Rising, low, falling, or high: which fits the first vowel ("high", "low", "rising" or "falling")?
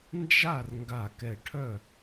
falling